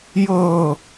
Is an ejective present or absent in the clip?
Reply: absent